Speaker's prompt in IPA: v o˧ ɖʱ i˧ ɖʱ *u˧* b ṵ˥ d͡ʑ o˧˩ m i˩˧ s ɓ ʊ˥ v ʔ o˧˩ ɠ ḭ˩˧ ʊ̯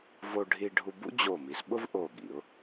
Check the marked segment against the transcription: correct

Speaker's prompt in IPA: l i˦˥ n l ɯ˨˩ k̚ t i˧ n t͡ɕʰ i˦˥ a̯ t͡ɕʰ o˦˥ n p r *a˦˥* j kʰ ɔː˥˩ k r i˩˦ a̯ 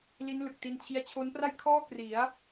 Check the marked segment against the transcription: incorrect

